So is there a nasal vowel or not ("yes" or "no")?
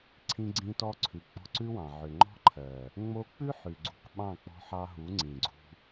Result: yes